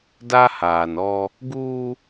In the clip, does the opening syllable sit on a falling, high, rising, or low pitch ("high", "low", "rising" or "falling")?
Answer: high